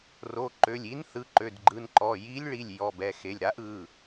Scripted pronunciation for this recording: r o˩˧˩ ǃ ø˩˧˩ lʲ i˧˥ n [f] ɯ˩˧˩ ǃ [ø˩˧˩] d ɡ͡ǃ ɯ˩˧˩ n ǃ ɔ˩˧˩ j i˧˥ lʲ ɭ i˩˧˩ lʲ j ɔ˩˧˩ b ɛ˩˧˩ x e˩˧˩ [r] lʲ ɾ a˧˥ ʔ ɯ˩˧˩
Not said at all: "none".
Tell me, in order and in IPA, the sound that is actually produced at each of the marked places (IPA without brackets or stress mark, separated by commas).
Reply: θ, ø˩˧˩, none